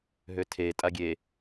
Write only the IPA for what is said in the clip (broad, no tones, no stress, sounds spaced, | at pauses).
ɦ ø tʰ e tʼ a ɡʲ e